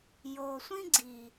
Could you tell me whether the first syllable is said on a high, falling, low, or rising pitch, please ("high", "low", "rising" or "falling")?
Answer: low